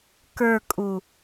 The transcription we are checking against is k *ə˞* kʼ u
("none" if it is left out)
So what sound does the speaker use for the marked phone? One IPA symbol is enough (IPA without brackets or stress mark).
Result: ə˞